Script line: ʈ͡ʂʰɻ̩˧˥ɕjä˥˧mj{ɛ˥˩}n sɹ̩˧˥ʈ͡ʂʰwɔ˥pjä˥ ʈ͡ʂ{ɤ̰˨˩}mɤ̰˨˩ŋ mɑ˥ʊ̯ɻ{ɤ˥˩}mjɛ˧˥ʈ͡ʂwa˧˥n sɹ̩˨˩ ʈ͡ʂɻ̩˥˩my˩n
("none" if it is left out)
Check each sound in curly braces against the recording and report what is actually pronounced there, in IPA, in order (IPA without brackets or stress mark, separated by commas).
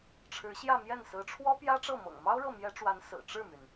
ɛ˥˩, ɤ˥˩, ɤ˥˩